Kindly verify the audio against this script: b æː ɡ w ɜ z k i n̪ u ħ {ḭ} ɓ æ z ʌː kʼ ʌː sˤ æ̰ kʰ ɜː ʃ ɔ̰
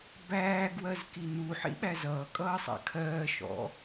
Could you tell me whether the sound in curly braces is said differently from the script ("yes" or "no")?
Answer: no